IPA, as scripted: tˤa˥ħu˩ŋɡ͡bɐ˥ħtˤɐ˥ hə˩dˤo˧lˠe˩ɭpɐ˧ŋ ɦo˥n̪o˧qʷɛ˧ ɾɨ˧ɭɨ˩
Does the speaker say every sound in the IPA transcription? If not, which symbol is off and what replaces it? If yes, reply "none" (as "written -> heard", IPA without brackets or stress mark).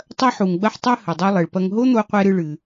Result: a˥ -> ɐ˥